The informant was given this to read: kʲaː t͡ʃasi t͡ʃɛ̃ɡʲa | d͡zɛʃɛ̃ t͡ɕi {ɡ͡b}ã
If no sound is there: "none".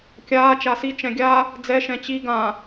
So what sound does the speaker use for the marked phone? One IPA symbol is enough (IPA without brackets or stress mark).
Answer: ɡ